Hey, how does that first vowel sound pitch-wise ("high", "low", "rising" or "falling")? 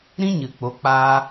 high